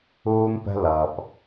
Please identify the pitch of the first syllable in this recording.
high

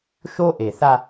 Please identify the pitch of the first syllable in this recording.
high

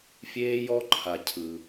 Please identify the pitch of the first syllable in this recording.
high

